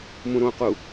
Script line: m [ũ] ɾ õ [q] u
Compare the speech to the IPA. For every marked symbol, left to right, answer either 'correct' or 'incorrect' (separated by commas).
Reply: correct, correct